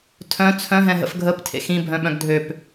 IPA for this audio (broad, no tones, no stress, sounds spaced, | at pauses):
tʰ œ̃ t͡sʰ œ̃ ɦ ɛ̃ ɦ ə̰ f ɡʱ ə p tʰ ḛ x ĩ bʱ œ̃ ɓ œ̃ ɡ dʱ ø p